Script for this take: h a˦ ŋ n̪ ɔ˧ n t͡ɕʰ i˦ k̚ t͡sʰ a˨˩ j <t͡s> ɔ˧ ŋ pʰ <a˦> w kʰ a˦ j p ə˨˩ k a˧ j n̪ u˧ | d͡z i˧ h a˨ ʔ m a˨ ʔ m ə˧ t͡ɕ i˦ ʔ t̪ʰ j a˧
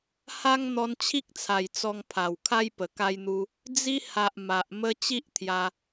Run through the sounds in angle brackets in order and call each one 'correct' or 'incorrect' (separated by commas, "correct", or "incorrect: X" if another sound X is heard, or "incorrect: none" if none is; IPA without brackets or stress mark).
correct, incorrect: a˨˩